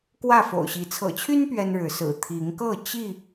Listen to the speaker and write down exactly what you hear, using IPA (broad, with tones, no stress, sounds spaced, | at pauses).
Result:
k w ä˥˨ f o̰˨˩ ʊ̯ ɕ i˨˦ t͡sʰ ɤ̰˨˩ t͡ɕʰ y˦ n p ɥ ɛ˦ n ɻ ɻ̩˨˦ s ɹ̩˨˩ t̪ʰ i˨˦ ŋ k ɤ˥˨ t͡ɕ i˥˨